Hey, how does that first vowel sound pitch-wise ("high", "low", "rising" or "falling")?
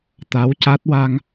rising